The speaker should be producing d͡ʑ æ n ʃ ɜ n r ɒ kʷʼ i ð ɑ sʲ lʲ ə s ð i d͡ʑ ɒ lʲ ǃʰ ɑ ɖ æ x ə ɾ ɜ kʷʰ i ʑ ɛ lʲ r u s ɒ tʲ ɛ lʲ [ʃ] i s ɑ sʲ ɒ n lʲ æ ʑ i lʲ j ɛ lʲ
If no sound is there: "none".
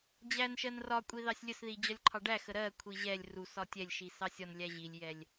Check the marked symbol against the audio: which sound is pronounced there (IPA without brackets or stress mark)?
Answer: ʃ